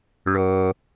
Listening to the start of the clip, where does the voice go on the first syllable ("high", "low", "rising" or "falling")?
low